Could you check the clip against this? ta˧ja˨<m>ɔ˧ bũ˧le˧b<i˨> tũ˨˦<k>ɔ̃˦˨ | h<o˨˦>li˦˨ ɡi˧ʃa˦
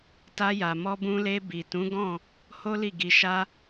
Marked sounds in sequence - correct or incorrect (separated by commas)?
correct, correct, incorrect, incorrect